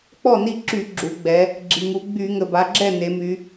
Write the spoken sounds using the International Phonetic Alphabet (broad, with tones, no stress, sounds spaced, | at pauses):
k͡p ɔ˥˩ n i˥˩ ǁ y˧˩˧ ɡ͡ǁ u˩˧ ɡ͡b ɛ˩˧ | ɡ͡ǁ i˩ ŋ u˩˧ ɡ͡b y˧˩˧ ŋ ə˩ b a˩˧ ɡ͡ǁ ɛ˥˩ n e˩˧ m y˩˧